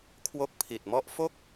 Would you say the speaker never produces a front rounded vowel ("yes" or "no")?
yes